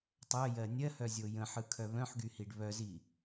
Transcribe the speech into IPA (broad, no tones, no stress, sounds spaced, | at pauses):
tˤ œ j ɜ nʲ ɜ h œ zʲ o j ə̃ ħ ɯ kʰ œ β œ̃ ħ ɡ y h i ɖ β œ z i